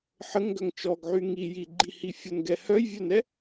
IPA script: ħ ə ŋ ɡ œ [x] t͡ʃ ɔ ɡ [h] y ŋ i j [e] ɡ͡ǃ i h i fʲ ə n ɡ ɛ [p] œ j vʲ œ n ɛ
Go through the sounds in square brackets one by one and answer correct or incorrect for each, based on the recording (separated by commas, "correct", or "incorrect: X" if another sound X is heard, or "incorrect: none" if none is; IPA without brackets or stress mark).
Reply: incorrect: ŋ, incorrect: ʕ, incorrect: i, incorrect: h